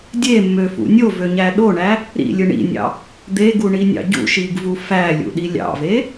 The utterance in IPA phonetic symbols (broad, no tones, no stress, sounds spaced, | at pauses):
dʲ e mː ø f ṵ nʲ o v ø ɲ æ ɗ o ɳ æ | ɾ ḭ lʲ ɯ ɳ ḭ nʲ ɑ̰ | d̪ e ɡ u ɳ i nʲ ɑ̰ ɟ ṵ ʃ i ɡ v u f æ lʲ ṵ ɗ i lʲ ɑ̰ v e